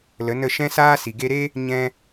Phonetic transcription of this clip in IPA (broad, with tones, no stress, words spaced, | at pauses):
lə˨˦nə˦˨ ʃɛ̃˦saː˦si˨ ɡe˧ɾe˦ | ɲɛ̃˧